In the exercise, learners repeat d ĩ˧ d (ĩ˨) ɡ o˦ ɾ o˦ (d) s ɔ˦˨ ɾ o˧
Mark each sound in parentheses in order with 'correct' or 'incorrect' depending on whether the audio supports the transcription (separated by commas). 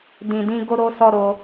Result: incorrect, incorrect